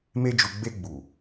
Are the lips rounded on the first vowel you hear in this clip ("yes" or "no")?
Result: no